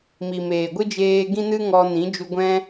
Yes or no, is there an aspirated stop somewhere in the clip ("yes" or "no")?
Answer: no